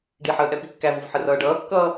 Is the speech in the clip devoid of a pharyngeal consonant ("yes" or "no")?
no